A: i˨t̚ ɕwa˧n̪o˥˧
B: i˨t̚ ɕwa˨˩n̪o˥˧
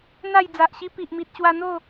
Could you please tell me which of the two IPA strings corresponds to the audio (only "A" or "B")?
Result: A